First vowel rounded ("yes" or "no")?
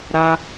no